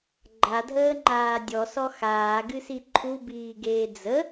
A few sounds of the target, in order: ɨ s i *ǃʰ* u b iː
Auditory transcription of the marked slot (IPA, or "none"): ǃʰ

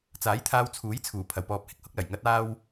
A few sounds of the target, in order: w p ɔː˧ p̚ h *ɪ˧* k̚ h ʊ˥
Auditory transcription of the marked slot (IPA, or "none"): ɪ˧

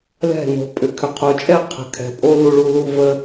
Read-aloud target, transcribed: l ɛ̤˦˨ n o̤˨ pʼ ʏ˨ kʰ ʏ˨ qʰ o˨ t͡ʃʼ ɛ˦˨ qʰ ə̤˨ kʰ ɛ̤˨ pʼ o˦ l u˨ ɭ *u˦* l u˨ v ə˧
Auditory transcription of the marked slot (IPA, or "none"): u˨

